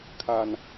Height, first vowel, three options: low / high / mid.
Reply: low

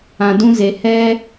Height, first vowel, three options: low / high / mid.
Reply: low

